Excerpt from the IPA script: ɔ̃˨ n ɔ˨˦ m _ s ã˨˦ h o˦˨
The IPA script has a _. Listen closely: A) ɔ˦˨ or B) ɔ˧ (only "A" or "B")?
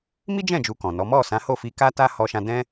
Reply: A